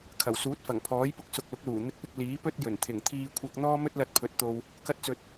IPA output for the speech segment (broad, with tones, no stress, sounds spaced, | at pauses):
kʰ ɐ˨˩ w s uː˨˥ t̚ f ɐ˨˩ ŋ pʰ ɔː˨˥ j p ʊ˧ k̚ s ʊ˨ k̚ l ʊ˨˥ k̚ l uː˨˩ n̪ ɪ˧ k̚ p ɪ˧ k̚ l iː˨˥ p ɵ˥ t̚ j ɵ˨˩ n t̪ʰ ɪ˨˩ ŋ t̪ʰ iː˧ kʷʰ ɐ˧ k̚ n̪ ɔː˥ m ɵ˥ t̚ l ɐ˧ t̚ pʰ ɵ˨˥ t̚ t̪ o˨ w | k ɐ˥ t̚ t͡s ɵ˧ t̚